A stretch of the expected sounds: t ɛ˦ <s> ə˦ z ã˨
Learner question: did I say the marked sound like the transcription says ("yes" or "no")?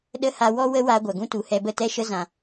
no